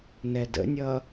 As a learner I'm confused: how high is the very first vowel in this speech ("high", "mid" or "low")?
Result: mid